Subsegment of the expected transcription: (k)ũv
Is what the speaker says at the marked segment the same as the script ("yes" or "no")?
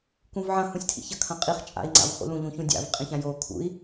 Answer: yes